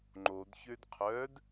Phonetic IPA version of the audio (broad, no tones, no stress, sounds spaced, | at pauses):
ŋ͡ǃ o d ç ø d qʰ œ d